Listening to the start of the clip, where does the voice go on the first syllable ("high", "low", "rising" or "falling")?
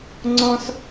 high